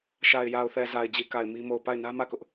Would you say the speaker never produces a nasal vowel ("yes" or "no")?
yes